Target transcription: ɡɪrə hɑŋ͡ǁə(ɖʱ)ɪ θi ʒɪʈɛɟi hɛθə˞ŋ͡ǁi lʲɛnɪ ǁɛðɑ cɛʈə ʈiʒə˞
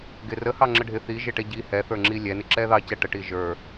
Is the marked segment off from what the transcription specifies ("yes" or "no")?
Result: no